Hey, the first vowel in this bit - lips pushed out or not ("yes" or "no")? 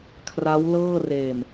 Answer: no